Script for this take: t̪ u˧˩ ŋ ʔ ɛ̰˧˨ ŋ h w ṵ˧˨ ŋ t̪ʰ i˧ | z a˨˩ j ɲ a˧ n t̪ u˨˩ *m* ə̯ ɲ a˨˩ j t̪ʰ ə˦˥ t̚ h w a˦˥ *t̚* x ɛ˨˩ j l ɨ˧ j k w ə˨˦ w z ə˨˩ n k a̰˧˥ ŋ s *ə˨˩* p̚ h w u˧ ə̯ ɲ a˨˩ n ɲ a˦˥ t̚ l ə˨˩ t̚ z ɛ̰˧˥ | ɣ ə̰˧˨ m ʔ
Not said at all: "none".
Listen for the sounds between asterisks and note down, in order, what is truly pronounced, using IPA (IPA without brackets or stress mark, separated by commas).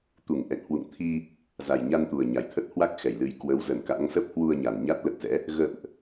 none, k̚, ə˦˥